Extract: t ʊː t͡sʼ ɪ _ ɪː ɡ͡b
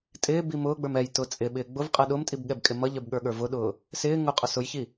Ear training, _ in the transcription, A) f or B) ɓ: B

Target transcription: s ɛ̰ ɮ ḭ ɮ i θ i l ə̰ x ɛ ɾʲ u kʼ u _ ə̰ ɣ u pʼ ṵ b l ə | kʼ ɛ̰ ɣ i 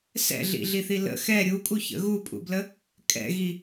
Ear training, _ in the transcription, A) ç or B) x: A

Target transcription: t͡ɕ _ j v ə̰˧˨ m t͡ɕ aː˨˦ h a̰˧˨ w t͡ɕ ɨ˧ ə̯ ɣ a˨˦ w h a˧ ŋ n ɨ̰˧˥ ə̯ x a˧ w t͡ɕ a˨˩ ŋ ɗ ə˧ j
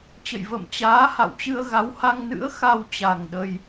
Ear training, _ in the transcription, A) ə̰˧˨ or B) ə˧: A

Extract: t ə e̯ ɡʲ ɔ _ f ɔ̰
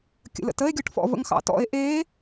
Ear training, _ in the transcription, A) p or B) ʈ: B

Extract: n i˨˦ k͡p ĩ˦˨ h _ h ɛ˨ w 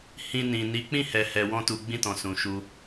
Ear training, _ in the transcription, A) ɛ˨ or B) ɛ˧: A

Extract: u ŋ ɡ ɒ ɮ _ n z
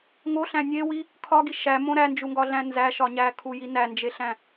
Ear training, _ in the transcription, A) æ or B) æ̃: B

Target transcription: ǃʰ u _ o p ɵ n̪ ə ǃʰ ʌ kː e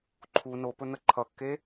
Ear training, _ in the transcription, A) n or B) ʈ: A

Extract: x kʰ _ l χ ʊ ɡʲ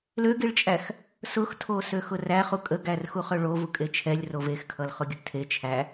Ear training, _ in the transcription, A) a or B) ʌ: B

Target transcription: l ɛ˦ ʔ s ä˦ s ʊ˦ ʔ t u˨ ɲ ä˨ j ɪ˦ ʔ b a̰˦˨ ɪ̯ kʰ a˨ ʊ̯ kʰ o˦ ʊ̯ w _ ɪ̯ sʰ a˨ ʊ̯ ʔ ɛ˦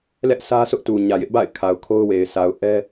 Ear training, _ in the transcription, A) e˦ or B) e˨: B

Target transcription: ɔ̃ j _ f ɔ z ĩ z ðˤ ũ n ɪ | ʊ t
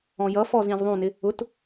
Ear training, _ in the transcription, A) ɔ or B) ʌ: B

